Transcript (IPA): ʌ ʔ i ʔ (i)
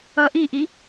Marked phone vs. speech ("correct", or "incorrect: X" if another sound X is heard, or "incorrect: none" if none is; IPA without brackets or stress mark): correct